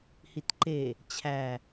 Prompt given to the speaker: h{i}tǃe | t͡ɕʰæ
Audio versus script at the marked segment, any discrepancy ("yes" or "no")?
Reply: no